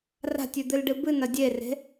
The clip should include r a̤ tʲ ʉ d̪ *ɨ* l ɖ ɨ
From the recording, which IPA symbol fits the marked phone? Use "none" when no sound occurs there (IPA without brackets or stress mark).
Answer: ɨ